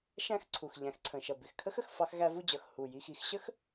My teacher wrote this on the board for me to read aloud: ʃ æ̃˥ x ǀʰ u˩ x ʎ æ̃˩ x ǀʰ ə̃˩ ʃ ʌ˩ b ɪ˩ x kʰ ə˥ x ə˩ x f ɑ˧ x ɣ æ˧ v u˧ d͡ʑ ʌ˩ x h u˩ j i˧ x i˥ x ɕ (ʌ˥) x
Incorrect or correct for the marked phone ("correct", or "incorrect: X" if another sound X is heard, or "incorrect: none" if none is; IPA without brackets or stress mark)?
incorrect: ə˥